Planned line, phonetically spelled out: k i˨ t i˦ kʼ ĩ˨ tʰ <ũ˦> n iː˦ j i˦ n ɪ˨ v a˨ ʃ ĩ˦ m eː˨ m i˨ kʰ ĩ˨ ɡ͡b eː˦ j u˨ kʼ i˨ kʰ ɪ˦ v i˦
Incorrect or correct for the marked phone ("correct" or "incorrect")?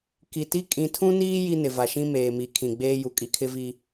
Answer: correct